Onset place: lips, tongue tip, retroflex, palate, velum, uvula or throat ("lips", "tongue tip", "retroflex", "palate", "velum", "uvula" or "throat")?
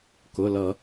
velum